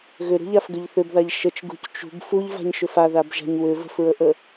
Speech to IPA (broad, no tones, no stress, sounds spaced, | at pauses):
ɣ ʏ ɾ ṳ ʎ a f ɡ ʏ ʎ θ ʏ b ð a ʎ ʃ ə t͡ʃ ɡ ṳ c t͡ʃ ṳ b f u ʎ v a̤ ɲ ʃ ʏ f a ð a b ʒ a̤ ɲ w ʏ v ə̤ f ɹ ə ʔ ə